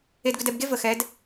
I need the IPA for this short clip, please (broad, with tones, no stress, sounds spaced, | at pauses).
e˨ d ɡ ʏ˨ d ɛ˨ b ɡ e˦ v ə˨ x ɛ˨˦ d